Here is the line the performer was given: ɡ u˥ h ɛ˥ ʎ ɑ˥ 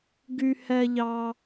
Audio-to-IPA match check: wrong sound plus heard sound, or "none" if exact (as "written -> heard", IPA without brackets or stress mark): u˥ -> y˥